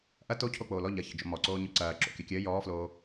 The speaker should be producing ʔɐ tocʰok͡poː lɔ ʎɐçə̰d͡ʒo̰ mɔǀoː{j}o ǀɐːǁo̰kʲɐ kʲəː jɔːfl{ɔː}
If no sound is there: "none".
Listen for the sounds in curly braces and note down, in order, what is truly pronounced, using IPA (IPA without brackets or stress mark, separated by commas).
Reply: ɲ, oː